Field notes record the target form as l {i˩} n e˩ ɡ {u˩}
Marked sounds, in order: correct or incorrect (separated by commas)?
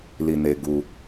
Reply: correct, correct